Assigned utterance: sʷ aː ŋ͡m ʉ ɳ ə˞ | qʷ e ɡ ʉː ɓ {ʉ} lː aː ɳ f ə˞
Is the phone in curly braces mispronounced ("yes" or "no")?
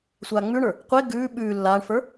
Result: yes